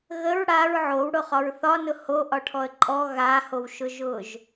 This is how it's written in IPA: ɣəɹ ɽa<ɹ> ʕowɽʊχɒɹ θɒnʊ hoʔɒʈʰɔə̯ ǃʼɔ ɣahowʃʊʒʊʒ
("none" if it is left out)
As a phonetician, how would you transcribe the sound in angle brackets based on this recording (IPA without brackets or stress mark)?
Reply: ɹ